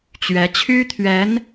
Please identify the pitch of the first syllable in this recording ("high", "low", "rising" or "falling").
rising